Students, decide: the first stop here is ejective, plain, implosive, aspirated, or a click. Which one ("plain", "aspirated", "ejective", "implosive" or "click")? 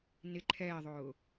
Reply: click